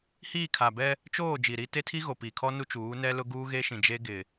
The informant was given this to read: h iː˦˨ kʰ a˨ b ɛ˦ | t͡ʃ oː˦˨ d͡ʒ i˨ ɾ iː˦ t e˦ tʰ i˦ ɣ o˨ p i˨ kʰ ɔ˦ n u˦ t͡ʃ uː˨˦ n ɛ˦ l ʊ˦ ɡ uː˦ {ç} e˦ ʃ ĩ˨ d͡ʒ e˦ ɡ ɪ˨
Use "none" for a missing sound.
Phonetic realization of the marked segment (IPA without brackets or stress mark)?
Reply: ɣ